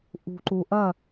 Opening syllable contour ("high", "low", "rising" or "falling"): low